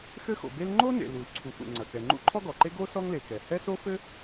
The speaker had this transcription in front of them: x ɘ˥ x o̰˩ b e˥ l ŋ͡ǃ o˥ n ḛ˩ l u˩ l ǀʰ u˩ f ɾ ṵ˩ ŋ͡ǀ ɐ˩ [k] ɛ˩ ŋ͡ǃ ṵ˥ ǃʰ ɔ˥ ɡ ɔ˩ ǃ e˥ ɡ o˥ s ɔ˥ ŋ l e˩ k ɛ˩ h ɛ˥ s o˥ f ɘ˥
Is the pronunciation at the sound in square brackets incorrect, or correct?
correct